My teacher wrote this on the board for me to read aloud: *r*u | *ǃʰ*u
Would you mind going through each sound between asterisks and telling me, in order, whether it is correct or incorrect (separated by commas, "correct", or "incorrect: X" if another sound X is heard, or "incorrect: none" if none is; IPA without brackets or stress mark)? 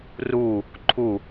correct, correct